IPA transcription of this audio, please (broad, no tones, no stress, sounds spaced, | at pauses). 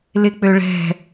l ɪ k͡p ø ɭ ɛ̤